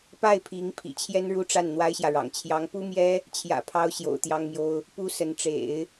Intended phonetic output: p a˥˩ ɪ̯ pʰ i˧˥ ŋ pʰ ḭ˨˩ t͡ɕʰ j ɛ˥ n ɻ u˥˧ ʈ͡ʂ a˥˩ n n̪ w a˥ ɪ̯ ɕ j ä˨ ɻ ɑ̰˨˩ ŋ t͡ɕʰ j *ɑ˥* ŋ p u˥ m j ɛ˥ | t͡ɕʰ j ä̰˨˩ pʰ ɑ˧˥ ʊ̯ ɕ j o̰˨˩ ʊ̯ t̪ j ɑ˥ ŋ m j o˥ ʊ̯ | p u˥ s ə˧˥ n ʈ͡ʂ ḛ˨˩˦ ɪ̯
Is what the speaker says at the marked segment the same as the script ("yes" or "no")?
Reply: no